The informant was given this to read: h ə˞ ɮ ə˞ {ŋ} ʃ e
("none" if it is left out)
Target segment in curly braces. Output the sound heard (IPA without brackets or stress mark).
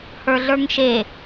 ŋ